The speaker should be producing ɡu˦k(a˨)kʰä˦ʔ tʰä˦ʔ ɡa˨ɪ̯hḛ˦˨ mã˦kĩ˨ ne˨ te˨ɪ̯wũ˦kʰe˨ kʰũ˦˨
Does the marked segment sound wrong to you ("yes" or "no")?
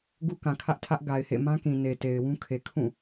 yes